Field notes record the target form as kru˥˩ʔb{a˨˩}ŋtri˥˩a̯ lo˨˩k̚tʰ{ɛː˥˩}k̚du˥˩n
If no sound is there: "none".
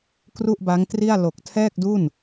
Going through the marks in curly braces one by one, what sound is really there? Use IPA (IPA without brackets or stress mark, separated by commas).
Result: a˦˥, ɛː˥˩